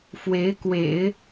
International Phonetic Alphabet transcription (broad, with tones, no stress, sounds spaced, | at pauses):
f w e˧˥ ɪ̯ k w ḛ˨˩˦ ɪ̯